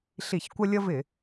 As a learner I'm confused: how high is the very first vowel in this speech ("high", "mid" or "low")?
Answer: high